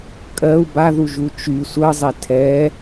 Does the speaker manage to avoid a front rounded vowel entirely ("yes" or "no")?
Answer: no